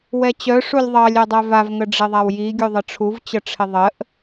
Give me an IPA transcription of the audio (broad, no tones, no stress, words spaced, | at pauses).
wɛt͡ɕœ ʂulʲðˤɑlʲ œdˤœvav ŋəɖ͡ʐɪðˤawji ɡʲuðˤəʈ͡ʂʰuv t͡ɕəʈ͡ʂʰɪðˤəʔ